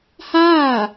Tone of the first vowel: falling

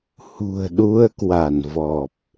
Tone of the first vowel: low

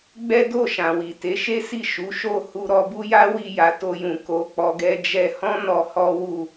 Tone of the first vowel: high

